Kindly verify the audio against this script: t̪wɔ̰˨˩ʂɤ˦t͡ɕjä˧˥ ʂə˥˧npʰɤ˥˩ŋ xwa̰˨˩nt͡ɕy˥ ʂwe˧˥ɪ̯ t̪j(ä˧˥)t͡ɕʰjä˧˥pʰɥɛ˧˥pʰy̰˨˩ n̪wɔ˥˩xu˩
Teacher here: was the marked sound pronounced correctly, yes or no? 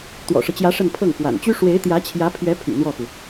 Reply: yes